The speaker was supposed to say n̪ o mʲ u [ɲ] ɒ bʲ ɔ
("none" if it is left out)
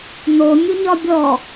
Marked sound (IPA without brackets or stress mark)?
ɲ